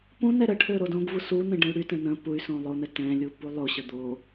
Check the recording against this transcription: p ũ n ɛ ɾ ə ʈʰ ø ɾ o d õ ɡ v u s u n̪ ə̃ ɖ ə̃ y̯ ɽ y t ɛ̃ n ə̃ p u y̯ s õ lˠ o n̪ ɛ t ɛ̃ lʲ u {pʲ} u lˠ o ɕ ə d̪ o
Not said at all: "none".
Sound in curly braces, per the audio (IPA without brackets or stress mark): p